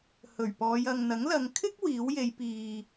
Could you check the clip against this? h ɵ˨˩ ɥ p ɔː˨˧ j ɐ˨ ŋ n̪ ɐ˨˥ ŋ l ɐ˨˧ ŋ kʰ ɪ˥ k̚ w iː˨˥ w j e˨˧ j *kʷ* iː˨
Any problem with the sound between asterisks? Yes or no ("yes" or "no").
yes